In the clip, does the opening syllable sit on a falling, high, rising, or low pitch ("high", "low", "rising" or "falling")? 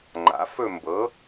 rising